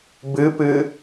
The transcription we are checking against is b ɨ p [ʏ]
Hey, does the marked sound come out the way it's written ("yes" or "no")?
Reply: no